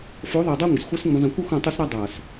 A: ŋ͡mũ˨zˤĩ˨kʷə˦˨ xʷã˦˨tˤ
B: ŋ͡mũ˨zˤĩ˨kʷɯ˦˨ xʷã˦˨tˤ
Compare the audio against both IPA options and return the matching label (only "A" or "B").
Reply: B